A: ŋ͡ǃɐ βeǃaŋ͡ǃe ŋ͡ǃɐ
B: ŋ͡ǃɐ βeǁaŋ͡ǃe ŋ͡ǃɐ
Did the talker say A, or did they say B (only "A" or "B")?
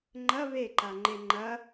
A